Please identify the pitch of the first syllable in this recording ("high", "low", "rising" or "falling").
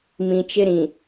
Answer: low